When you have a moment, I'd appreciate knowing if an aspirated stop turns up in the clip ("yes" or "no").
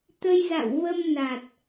no